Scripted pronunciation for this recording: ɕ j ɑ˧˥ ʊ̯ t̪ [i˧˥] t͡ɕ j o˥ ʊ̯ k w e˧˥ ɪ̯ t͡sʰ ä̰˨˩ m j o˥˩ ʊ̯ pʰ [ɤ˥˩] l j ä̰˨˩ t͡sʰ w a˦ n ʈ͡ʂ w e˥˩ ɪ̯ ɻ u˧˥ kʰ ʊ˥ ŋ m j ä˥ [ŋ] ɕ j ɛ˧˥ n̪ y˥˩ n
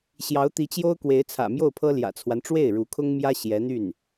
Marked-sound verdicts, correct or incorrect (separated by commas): correct, incorrect, incorrect